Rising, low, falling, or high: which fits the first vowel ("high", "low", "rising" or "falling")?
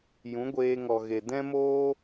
rising